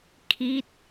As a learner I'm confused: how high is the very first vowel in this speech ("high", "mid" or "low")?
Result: high